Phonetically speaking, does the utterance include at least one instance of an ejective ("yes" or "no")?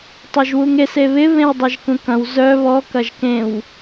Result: no